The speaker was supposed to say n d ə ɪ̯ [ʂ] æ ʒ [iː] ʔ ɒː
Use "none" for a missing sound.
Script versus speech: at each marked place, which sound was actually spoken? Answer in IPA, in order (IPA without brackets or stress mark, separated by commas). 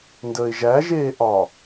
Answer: ʒ, eː